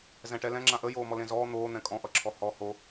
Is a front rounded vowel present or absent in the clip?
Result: absent